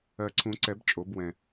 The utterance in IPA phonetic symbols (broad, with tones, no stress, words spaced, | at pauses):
ɜ˨˩ǀʰũ˨˩˦ǀɛ˨˩˦b t͡ʃʼo˨˩˦bwɛ̃˨˩